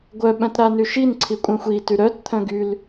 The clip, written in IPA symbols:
ɡʷ œ ɓ œ̃ t ɾ a n y ʃ i n ǀʰ i kʷʼ ɛ̃ xʷ i t y ɾ œ t t̪ʰ œ̃ ɡ y l

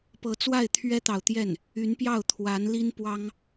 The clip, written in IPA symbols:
p ɤ˧˥ t͡s w a˥˩ ɪ̯ t̪ʰ ɥ ɛ˥ t̪ ɑ˨ ʊ̯ t̪ j ɛ˥˩ n | y˧˥ n p j ɑ˥˩ ʊ̯ t̪ʰ w a˧˥ n l i˥ n p w ɑ˥ ŋ

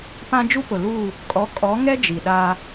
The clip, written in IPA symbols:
p ã˦ d͡ʒ u˦ p ʊ˨ l u˦˨ | kʼ ɔ˨˦ kʼ ɔ˨˦ ŋ ɛ˦ d͡ʒ i˨ ɗ a˦

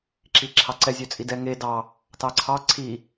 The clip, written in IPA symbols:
ǁ i ǁʰ ɑ ǀ ɛ zʲ ø t͡sʼ i d ɛ ŋ e d ɑ | t ɑ ǀʰ ɑ ǀʰ i

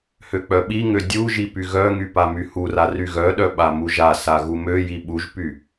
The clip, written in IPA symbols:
h ø k͡p œ ɓ i ŋ ø dʲ u ʒ i p y ɣ œ ŋ y p a m y h u r a r y ɣ œ ɗ œ ɓ a m u ʒ a s a ɣ u m ø j i ɓ u ʒ p y

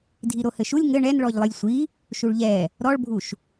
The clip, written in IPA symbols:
dʱ i ɾ o h ɘ ʃ u lʲ ŋ ɘ ɳ ɛ n ɭ ɔ ʎ lˠ ɨ lʲ sʷ i | ʃ u ɭ ʎ ɛ | ɾ ɔ ɭ bʱ u ʃ

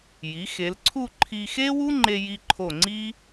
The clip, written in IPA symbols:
j i˩˧ x e˩˧ l ǀʰ u˥˧ ǃʰ i˧ x e˥ w u˥ ŋ͡ǃ e˧ j i˧ ǃʰ o˧˩ ŋ͡ǀ i˥

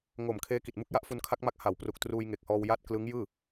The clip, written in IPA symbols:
ŋ o˨˩ m kʰ eː˦˥ k i˨˩ t̚ m u˦˥ k̚ j a˦˥ ʔ f u˧ n kʰ a˦˥ k̚ m a˦˥ k̚ h a˩˦ w p r u˨˩ k̚ t r uː˧ j ŋ e˨˩ k̚ h ɔː˧ w j a˥˩ t̚ k l ɯ˦˥ ŋ j ɯː˥˩

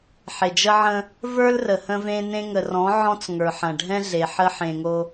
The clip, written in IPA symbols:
ħ e˨ d͡ʒ ə˦ ʕ ə̃˦ | v ə˞˦ l r ə˨ h ə̃˦ v ẽ˦ n ẽ˦ ŋ ə˨ r ɔ̃˨˦ ʕ ɔ̃˦ t͡s ŋ ə˞˨ ħ ɐ̃˨ ɖʱ ɛ̃˦ ɮ e˨ ħ ə˦ ħ ẽ˨ ŋ o˦

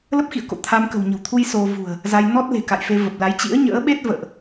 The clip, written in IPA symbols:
l ə˦˥ p̚ x ḭ˧˨ ə̯ k o̰˧˨ t̪ʰ a˧ m k ə̤˨˩ w ɲ ə̤˨˩ w t̪ʰ u˧ j s o˧ v ṳ˨˩ ə̯ | z a˧ j n ɔ˦˥ t̚ l e̤˨˩ k a̰˧˨ j f e˧ v ə˨˩ p̚ l a˨˦ j t͡ɕ ḭ˧˥ ə̯ ɲ ə̰ː˧˥ ɓ e˦˥ t̚ v ə̰ː˧˨ ʔ

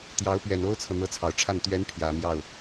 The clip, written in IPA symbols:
t̪ j ɑ˧˥ ʊ̯ p ɥ ɛ˨˩ n o˥ ʊ̯ t͡sʰ ɤ˨ n̪ ɤ˧˥ t͡sʰ ɑ˨˩ ʊ̯ ʈ͡ʂʰ a˥˩ n t̪ ɥ ɛ˧˥ n pʰ j ä˨˩ m j ɑ˥˩ ʊ̯

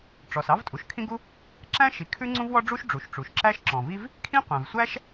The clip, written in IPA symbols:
ʈ͡ʂ ɔ˩ s ɑ˥ v tʼ u˩ ʃ kʰ ĩ˥ ɡ u˥ | ǁ æ̃˥ ʃ i˩ kʰ ʉ˥ ŋ͡ǀ ũ˥ v w ɔ˥ ɖ͡ʐ u˥ ʃ ɖ͡ʐ u˩ ʃ ʈ͡ʂ u˩ ʃ ǁ æ˥ ʃ ǁ ɔ̃˩ v i˥ v | kʰ ĩ˥ qʷ æ̃˩ v sʷ æ˥ ʃ

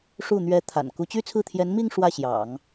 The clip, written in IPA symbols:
ʂ u˥˩ n̪ ɥ ɛ˧˥ t̪ʰ a̰˨˩ n k u˧˥ t͡ɕ y˥ t͡sʰ ɹ̩˥˩ t̪ʰ j ɛ˧˥ n m i˥˧ ŋ ʂ w ä˥˩ ɕ j ɑ̰˨˩˦ ŋ

